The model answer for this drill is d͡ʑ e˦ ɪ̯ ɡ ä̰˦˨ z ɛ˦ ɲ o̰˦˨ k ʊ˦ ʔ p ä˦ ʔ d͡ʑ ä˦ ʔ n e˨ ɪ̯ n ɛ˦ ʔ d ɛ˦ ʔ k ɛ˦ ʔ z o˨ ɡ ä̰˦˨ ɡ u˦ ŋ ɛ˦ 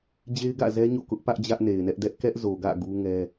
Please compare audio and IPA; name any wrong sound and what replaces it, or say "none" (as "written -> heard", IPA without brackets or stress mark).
none